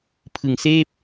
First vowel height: high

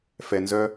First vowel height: mid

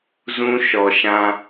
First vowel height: high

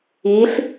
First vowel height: high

